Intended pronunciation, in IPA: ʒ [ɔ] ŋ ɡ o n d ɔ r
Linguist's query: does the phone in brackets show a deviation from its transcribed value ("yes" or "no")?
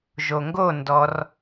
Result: yes